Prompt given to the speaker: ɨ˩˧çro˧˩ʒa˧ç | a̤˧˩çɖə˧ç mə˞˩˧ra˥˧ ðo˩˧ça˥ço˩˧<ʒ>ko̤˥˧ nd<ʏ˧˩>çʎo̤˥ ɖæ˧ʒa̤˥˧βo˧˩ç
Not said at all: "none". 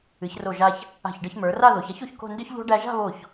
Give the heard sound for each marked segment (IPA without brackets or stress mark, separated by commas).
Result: ç, ʏ˥